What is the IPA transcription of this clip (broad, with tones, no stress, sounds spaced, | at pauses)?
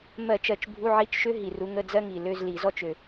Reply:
m ɜ˧˩˧ t͡ʃ ɜ˨˩ t͡ʃ bʱ u˧˥˧ ʕ i˧˥˧ t͡ʃ ʃ ø˥ ɦ i˨˩ r u˨˦ ŋ ə˧˥˧ d͡z ɜ˥ ŋ i˨˩ l ø˧˥˧ z l i˧˩˧ z ɔ˥ t͡ʃ ø˨˩